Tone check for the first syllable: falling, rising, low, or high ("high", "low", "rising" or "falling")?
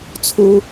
high